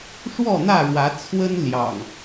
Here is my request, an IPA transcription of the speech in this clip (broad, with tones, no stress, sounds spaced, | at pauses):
ʂ w ɔ˥˨ n̪ ä˥˨ ɻ w ä˨˦ t͡sʰ w ə˦ n l j ɑ̰˨˩ ŋ